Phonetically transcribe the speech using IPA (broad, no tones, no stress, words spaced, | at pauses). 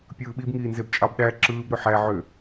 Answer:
pʲɯːɓib ŋiːnzebt͡ʃʼɑbɗæ ǁɯːb ɾøħæ ʕø